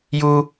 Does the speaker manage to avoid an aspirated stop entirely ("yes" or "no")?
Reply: yes